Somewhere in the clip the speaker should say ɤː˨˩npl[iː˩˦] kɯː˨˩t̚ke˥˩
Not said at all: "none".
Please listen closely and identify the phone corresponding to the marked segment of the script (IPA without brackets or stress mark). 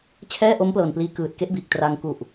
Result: iː˧